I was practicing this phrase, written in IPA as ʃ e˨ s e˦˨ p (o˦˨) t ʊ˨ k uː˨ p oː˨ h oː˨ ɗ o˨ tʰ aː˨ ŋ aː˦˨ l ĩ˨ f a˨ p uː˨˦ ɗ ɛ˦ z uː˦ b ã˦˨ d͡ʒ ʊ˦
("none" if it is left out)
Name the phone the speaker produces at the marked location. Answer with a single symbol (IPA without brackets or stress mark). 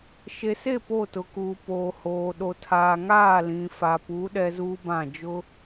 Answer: o˦˨